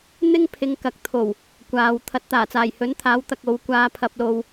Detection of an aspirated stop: present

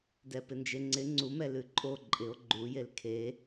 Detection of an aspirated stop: present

